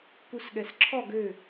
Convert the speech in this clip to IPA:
k u s ɠ ɛ s ǁʰ ɔ ɡ ø

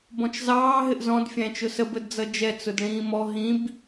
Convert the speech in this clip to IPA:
b ɔ̃ t͡ʃ z ɑː ɦ ɪ ʔ z ɔ̃ d fʲ æ̃ t͡ʃ ʊ s ə b ə d d͡z ʌ d͡ʒ ɛ t͡s ʊ d ɭ ĩː m ɔ ɦ ĩ b

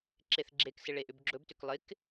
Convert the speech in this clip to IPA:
ǁ e θ ɡ͡ǁ e k s ɪ ɭ e ʔ ʏ b ɡ͡ǁ ɵ b t ʏ k lˠ ɪ k

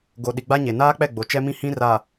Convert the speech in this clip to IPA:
ɡ o˨ ɗ i˨ ɡ͡b a˦ ɲ e˨ n aː˦ k͡p ɛ˦˨ ɡ͡b o˨ t͡ʃ ɛ˦ m ĩ˦ h ĩ˦ r a˨

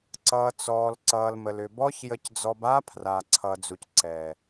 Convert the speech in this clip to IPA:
ǀ ʌː˨ t͡s ɔː˨ l ǀ ʌː˨ l m ə˨ l ʏ˨ b ɔ˦ ç j ə˧ c d͡z ɔ˧ b a˦ pʰ r a˨ ǀʰ ʌː˨ d͡z u˨ c ǀ ɛ˨

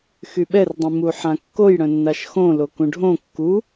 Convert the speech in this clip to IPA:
x y ɓ ɛ r dˤ ĩ m u ħ ã kː o j ɽ œ̃ nː a ʃ x õ l o k ũ ɖʱ õ kː u

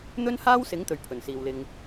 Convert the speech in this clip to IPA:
n̪ ɵ˥ n h aː˥ w s ɪ˨˥ ŋ t̪ ɵ˨˩ ɥ pʰ ɵ˨˩ n s iː˨ w l ɪ˧ ŋ

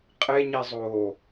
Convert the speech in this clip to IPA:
qʼ e ɲ i zˤ oː

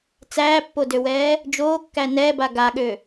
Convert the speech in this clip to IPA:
t͡s æː pː o d ø w ɛː | d͡ʒ oː kː æ n ɛː b a ɡ a ɠ ø

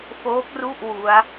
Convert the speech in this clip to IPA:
f oː˦˥ k̚ r u˥˩ ʔ w u˦˥ a̯

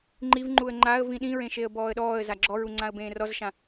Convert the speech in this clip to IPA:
ŋ͡ǃ i v ŋ͡ǃ u ə̯ ŋ͡ǃ a ə̯ v ĩ ɗ ĩ ɹ ẽ ʃ e ə̯ b ɔː ə̯ ɗ ɔː ə̯ z a ɡ͡ǁ ɔ ɹ u ŋ͡ǀ ã ə̯ b ẽː r ɔ z ʃ ã

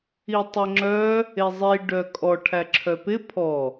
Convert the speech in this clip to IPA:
i tˤ e ŋ͡ǁ œ | e zˤ i ɖ œ kʼ ɔ ʈʰ æ ǁʰ œ p ɪ pʰ ɔ

